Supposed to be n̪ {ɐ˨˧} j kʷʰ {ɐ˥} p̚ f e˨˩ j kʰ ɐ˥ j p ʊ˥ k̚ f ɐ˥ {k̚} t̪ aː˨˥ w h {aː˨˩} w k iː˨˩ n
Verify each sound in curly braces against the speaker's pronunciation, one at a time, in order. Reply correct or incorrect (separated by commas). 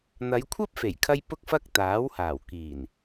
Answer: correct, correct, correct, correct